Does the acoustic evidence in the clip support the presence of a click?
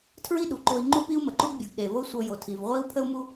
yes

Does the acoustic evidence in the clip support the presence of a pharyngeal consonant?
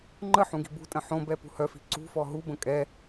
yes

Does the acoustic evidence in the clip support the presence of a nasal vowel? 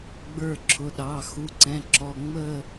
yes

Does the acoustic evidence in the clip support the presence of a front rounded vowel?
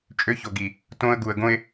yes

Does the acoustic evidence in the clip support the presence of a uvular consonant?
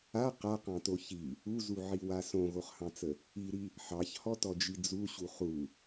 yes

